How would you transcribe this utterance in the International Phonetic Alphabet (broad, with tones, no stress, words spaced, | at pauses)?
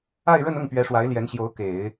a˥˧ɪ̯ɻə˥˧nʊ˥˩ŋ pɥɛ˧˥ʂwa˧˥ɪ̯ ljɛ˧˥nɕjo˧˥ʊ̯ ke˨˩˦ɪ̯